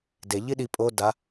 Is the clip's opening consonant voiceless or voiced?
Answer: voiced